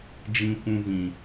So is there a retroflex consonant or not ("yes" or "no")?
no